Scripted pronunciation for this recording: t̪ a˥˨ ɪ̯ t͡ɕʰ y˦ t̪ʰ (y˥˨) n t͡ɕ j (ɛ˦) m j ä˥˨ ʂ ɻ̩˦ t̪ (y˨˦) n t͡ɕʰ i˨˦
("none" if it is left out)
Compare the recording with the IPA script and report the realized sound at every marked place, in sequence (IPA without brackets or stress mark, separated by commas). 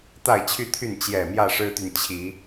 y˥˨, ɛ˨˩, y˨